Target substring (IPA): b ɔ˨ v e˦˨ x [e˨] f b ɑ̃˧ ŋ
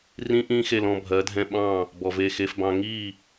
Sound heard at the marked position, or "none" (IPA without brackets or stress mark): e˧